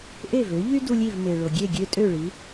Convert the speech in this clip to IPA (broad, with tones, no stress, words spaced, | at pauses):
ʔe˥˩vø˩˥ʎy˥ du˧lʲi˥˩v me˩ɭo˩ ɡʲe˥˩ ɡʲø˥tʼø˥˩ɭi˩˥